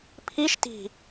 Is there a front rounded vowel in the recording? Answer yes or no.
no